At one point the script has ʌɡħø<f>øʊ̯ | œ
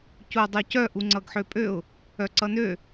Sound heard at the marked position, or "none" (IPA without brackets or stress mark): pʼ